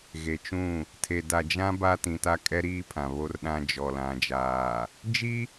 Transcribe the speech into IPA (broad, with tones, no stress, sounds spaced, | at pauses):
ɣ e˨ t͡ʃ ũ˦˨ | tʰ e˨ d a˨ d͡ʒ ã˦ b a˦ t ĩ˨ t a˦ kʼ ɛ˦ ɾ iː˦ pʰ ã˨ β o˦ r ɗ ã˦ d͡ʒ ɔ˨ l ã˨ d͡ʒ aː˨ | d͡ʒ i˦